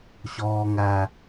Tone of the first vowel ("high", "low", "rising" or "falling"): low